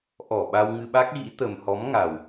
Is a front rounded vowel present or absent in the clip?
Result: absent